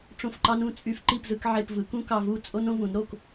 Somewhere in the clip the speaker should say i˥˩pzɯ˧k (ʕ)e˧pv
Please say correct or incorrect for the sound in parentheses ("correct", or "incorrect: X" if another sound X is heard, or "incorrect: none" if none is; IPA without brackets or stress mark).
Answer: correct